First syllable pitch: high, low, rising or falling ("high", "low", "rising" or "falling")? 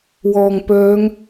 low